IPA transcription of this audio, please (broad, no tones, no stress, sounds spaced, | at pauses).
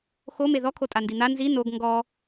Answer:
x o m e ð ɔ kʰ o tʼ a n d i n̪ a n z i n o ɡ ŋ ɡ ɔ